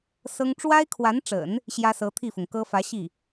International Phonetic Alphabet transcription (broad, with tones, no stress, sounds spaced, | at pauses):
s ɤ˥ ŋ ʈ͡ʂ w a˥ ɪ̯ kʰ w a˧˥ n ʈ͡ʂ ə̰˨˩˦ n | ɕ j ä˥ s ɤ˧˥ t̪ʰ i˥˩ f ʊ˩ ŋ k ɤ˥ f ä˧˥ ɕ i˥˩